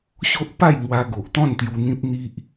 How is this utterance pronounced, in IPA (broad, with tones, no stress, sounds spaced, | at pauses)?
ɕ o˦ ʔ p a˥˧ j ŋ w a˧ ɡ o˨ ʔ t̪ ɔ̃˥˧ n t̪ j u˧ n̪ ĩ˦ p̚ n̪ i˦ ʔ